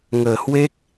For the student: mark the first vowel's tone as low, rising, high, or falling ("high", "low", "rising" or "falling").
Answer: low